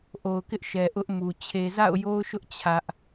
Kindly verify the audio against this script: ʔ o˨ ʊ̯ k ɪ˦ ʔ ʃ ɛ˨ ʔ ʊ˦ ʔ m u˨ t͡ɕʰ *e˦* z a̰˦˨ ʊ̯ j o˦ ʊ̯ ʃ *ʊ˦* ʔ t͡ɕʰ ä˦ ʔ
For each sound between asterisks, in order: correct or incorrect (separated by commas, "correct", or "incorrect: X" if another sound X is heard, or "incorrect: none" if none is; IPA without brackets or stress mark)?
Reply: incorrect: e˨, correct